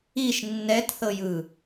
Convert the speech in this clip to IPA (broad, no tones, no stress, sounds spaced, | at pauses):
i ʃ nː ɛ t θ ɤ j ɯ